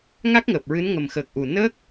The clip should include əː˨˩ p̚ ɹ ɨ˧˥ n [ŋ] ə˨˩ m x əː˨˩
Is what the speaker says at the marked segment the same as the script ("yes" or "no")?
yes